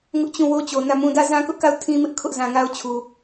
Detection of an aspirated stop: present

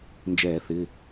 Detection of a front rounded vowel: absent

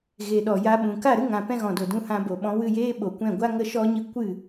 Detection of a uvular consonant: absent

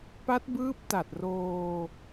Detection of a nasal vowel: absent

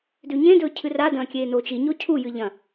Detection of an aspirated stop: present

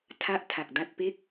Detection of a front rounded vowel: absent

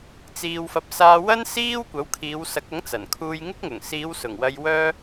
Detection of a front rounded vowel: present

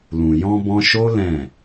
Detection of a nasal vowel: present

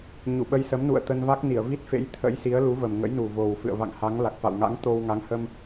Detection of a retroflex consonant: absent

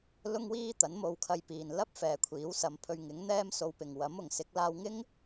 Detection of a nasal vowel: absent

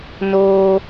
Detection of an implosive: absent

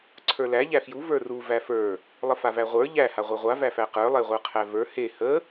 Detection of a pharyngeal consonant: absent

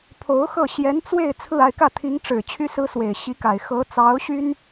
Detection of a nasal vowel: absent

